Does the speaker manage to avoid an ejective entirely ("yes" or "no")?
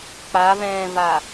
yes